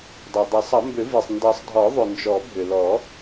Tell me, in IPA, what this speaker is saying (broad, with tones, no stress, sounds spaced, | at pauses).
dˤ ɛ˩ dˤ ɛ˨˩˦ sˤ ʌ˨˩˦ m b ʏ˨˩˦ v i˩ sˤ n d ʌ˨˩˦ sˤ dʱ ɔ˨˩˦ ðˤ ʏ˩ n d͡ʒ ɔ˨˩˦ bʱ ʏ˩ l ɔ˨˩˦